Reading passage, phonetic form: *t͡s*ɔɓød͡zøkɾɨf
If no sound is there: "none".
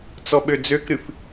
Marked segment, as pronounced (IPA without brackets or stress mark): t͡s